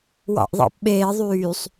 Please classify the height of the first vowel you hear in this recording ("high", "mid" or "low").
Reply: low